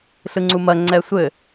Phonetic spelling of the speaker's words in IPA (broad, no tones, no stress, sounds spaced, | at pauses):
ɬ ɯ ŋ͡ǀ u m ɐ ŋ͡ǀ ɛ sʷ ɘ